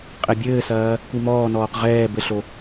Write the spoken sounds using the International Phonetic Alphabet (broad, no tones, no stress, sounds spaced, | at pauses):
qʼ ɛ bʲ ɘː s ɐː | kʷ i m ɔː n ɔː q ʁ ɛː b ɘ ɬ o